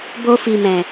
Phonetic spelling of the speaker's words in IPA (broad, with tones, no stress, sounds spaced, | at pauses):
b o˧ f i˨ m ɛ̃˨